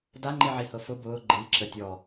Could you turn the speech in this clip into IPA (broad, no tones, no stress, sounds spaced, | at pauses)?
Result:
d a ŋ͡ǃ i ʕ i h ɤ f ʊ b ʊː ɡ͡ǃ i ǁ ə tʲ ɔ